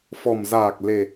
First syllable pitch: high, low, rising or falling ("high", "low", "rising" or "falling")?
low